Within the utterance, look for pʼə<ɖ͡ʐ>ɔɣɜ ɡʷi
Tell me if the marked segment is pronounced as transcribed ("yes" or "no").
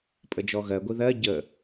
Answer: no